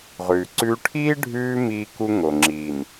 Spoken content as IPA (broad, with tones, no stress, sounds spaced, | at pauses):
ʁ ʉː˨ ǀ ʉː˦ ʈʰ iː˦ ɖʱ ʉː˦ m iː˦ k u˦ ŋ o˨ ŋ͡ǁ iː˨ n